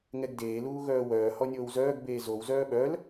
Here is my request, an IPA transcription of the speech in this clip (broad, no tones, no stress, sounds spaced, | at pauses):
ŋ ɛ ɡ d eː l uː ɣ œː w œː h ɔ nʲ oː w z œː ɡ b eː z o w z œː ɓ œ l